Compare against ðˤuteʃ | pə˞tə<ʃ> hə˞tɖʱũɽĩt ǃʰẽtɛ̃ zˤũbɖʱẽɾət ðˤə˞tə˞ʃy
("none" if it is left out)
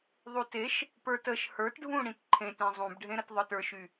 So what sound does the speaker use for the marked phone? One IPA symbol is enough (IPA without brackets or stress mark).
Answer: ʃ